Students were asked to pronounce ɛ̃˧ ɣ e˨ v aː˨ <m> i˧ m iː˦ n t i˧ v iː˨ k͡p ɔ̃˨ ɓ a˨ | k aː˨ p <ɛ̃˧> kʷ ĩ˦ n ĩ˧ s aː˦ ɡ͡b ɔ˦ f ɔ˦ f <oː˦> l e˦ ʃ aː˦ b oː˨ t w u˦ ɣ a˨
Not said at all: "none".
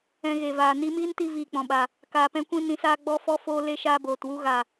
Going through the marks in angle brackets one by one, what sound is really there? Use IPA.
n, ɛ̃˧, oː˦

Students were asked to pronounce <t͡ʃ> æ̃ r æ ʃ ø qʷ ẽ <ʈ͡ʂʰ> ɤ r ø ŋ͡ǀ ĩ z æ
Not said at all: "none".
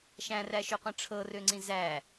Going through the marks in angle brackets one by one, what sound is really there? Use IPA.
ʃ, ʈ͡ʂʰ

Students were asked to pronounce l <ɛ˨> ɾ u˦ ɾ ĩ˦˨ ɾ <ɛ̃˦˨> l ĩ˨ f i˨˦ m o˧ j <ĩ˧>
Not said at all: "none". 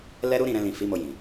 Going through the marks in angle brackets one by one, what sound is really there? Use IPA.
ɛ˦, ɛ̃˧, ĩ˨

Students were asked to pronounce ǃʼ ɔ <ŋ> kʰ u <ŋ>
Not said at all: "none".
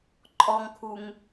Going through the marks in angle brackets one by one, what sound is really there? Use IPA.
ŋ, ŋ

